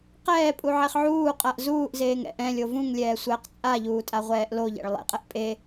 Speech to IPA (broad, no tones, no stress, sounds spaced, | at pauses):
q ɛː pʼ u ʕ e χ ʕ uː qʼ a ʔ z uː ʔ z eː ŋ ɛ̰ ʔ ɛ̃ lʲ o v ũ ŋ lʲ ɛː sʷ ɛː q t͡sʼ a ʎ uː tʼ a ʁʷ ɛː ʔ l o ʎ ɛ̰ ɭ lˠ ḛ qʼ ɛ ʔ pʼ e